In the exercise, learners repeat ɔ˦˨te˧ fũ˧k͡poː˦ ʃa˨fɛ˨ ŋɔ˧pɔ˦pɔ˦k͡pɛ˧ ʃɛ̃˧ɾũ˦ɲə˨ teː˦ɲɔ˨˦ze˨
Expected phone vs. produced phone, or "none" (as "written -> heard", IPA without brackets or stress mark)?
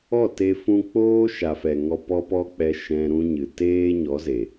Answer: ə˨ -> ɨ˨